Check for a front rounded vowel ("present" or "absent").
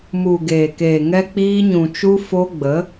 absent